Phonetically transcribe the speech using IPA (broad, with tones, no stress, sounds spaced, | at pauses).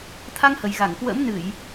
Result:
t̪ʰ a˧ ŋ h ə˨˩ j ɣ a˧˩ ŋ k w ə̰˧˥ m n ɨ˧˩˨ j